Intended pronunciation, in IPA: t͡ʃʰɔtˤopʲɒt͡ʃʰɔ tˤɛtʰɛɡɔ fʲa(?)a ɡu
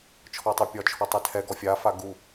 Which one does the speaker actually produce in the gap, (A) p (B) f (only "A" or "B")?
B